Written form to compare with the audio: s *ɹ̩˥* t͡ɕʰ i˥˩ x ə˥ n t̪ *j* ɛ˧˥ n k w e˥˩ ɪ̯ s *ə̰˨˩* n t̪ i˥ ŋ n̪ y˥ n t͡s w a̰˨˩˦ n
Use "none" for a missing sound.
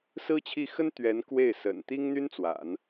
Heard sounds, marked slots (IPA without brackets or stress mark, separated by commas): ɹ̩˥, ɥ, ə̰˨˩